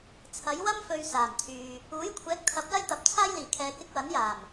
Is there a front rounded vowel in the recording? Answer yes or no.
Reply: yes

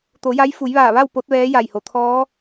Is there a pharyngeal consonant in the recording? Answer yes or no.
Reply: no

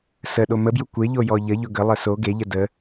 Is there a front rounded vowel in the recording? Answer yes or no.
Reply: no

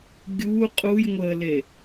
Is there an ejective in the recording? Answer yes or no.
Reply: yes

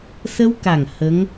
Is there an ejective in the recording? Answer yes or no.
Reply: no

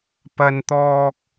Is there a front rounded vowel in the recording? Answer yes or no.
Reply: no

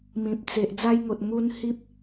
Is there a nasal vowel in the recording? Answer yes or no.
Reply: yes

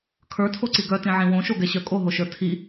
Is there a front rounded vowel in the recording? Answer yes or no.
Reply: yes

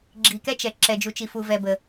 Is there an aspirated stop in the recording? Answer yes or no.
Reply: no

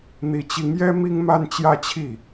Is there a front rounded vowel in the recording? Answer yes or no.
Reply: no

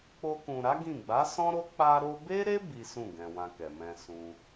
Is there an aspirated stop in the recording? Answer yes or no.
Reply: no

